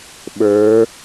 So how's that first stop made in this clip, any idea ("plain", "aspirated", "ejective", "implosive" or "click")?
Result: implosive